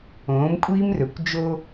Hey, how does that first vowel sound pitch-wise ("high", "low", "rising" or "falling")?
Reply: rising